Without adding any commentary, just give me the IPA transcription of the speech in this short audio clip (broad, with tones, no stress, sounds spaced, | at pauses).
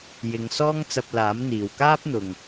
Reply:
j ɪ˨ ŋ s ɔː˥ ŋ t͡s ɐ˧ p̚ l aː˨˥ m n̪ iː˨ w k aː˥ p̚ n̪ ʊ˨ ŋ